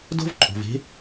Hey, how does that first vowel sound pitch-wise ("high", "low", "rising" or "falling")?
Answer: high